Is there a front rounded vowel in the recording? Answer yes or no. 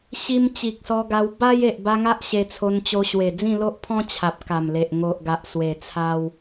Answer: no